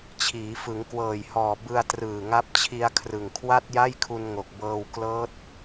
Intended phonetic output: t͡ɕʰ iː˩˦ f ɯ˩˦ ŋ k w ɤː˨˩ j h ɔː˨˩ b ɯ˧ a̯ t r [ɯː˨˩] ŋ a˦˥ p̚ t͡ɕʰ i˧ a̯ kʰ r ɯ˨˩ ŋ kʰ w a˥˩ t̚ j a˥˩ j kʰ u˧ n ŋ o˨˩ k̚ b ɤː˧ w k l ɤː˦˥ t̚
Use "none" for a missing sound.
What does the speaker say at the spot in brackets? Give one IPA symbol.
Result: ɯː˨˩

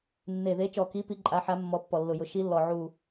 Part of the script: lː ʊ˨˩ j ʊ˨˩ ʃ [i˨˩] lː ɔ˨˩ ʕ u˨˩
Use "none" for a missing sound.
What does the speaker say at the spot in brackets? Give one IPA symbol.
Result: i˨˦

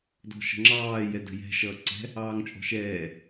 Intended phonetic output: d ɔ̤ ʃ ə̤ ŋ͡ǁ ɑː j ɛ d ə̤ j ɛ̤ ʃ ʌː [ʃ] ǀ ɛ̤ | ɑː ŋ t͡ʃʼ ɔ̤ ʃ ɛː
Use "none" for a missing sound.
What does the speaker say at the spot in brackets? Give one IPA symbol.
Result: none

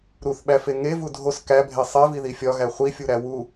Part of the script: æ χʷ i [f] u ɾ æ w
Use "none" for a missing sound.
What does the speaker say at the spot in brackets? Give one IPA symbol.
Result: fʲ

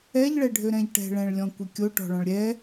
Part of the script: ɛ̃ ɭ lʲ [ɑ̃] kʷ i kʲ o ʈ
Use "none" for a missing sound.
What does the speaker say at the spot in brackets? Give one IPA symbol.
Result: ɔ̃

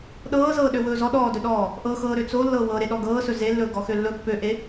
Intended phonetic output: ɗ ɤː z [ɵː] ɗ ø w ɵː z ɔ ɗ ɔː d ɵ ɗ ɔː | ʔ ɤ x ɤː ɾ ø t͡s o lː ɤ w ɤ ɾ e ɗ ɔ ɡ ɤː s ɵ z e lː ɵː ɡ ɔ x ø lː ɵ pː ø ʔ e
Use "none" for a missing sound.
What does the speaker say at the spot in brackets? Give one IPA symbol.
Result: ɤː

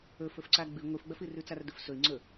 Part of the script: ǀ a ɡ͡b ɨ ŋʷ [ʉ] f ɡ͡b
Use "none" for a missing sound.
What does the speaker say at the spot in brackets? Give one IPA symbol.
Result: ɨ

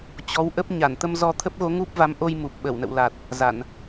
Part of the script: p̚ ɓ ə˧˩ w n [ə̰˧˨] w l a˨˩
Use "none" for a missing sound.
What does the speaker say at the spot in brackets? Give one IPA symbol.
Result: ə̰˧˨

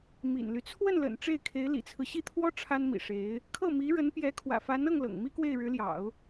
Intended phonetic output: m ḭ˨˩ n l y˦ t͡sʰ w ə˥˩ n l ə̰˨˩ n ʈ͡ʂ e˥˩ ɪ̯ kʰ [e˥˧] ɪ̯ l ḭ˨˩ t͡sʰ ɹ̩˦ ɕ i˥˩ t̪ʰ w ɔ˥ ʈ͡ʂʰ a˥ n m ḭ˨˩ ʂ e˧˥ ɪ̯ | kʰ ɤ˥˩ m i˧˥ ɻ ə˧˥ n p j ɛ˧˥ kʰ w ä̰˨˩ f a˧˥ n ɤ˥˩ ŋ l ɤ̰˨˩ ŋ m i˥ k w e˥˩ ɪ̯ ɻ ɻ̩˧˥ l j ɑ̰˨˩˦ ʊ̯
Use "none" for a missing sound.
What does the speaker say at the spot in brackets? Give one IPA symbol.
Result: e˧˥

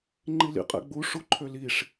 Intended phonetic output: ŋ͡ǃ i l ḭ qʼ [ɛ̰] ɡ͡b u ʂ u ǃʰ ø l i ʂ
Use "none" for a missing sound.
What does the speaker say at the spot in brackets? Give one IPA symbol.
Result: ɛ̰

